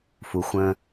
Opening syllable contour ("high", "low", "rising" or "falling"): low